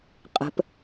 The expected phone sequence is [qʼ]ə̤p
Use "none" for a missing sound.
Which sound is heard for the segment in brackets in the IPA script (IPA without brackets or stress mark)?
qʼ